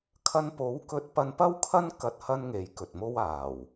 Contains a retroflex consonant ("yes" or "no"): no